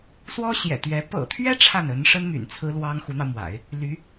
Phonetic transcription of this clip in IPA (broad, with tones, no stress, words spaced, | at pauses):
swɔ˥ɕjɛ̰˨˩t̪ɥɛ˧˥ pɤ̰˨˩t̪ʰɥɛ˥ ʈ͡ʂʰa˥˩nə˧˥nʂə˥n my̰˨˩nt͡sʰɹ̩˥lwɑ˥ŋ xu˧˥n̪ɑ˧ʊ̯mwa̰˨˩˦ɪ̯ | ly˧˥